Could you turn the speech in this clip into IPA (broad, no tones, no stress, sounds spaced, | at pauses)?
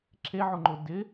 ǁ e ʕ ʊ ŋ͡ǃ ʊ d ɪ